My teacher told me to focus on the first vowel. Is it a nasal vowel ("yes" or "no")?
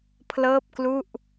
no